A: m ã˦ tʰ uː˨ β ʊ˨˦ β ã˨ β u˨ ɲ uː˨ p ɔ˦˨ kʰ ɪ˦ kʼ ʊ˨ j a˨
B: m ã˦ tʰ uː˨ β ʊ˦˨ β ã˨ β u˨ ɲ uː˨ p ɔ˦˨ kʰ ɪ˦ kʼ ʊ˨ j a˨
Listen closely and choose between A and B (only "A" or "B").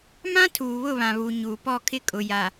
B